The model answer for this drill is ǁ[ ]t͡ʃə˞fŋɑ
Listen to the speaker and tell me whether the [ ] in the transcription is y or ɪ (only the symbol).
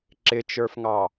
ɪ